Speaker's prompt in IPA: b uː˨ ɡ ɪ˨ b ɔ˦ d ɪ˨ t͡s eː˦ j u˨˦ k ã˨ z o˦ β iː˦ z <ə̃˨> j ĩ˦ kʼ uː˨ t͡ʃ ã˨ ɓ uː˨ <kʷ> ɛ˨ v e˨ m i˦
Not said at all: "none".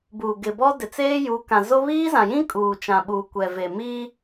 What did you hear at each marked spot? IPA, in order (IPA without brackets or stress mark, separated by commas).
ã˨, kʷ